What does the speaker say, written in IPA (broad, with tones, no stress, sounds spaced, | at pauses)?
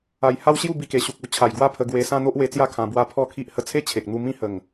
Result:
a˨˩ j h a˦ w ɕ j u˥˧ b i˧ k e˨˩ ɕ u˨ k̚ u˧ t͡ɕʰ a˨˩ j ɡ w a˥˧ pʰ ə˧ ɡ w e˧ s ã˦ n̪ o˦ ʔ w e˧ t͡s j a˦ kʰ ã˧ b w a˦ pʰ ɔ˥˧ kʰ i˦ ʔ h ə˧ t͡sʰ e˦ t͡ɕʰ e˨ k̚ n̪ u˧ m ĩ˦ h ə˨˩ ŋ